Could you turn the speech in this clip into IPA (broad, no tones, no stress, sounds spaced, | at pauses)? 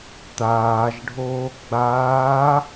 t̪ aː ʒ ɖʱ oː ɡ͡b aː